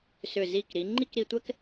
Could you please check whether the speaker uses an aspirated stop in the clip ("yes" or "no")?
no